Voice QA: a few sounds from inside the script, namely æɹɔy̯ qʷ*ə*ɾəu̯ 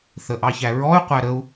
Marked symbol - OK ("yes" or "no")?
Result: no